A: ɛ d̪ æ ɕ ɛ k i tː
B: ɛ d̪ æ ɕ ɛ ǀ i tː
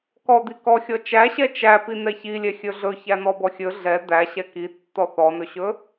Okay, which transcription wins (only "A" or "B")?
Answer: A